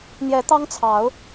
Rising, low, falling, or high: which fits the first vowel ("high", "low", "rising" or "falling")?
rising